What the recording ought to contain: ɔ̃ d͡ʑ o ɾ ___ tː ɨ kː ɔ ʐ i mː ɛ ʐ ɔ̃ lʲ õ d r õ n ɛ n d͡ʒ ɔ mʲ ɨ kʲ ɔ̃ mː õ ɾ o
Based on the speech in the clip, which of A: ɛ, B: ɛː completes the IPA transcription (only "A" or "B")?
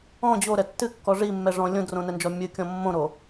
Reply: A